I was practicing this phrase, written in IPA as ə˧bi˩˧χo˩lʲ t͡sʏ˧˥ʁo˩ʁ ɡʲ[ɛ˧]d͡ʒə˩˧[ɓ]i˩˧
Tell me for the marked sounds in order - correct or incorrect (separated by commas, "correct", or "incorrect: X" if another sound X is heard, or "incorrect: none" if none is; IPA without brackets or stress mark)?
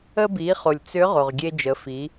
incorrect: e˧, incorrect: f